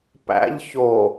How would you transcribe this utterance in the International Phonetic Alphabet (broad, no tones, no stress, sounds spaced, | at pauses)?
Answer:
p æ̰ ʎ ç o